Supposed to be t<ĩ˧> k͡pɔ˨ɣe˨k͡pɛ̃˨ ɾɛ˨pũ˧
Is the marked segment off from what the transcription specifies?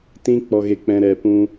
no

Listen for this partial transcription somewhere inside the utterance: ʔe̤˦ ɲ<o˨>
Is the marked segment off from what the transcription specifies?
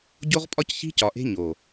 no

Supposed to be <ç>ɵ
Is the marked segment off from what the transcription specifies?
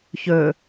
no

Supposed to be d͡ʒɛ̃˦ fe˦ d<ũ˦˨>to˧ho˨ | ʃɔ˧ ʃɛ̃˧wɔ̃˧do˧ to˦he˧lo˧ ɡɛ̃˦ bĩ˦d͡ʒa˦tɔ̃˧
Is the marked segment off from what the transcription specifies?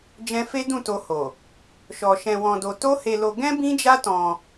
no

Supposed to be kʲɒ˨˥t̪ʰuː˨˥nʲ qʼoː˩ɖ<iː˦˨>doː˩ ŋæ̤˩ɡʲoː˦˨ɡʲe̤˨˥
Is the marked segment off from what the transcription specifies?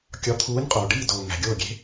no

